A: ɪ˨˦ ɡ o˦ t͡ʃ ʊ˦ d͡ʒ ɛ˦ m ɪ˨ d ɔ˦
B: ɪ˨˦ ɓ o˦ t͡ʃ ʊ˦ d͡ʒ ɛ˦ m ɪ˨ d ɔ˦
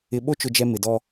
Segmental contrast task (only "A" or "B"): B